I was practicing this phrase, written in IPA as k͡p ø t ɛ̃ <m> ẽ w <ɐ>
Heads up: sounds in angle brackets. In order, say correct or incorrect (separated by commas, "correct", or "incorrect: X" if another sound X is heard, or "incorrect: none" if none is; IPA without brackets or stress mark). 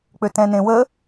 incorrect: n, incorrect: ə